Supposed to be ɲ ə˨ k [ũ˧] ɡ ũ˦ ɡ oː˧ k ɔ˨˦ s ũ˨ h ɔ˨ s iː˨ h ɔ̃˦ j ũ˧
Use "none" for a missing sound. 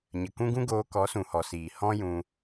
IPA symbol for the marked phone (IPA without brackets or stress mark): ũ˦